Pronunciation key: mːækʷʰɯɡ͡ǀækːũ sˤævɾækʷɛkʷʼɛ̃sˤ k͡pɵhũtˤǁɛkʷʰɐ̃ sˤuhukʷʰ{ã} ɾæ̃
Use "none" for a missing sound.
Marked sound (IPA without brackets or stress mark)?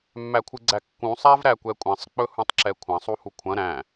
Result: ɐ̃